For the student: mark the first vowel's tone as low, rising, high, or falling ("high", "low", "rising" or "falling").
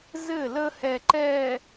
falling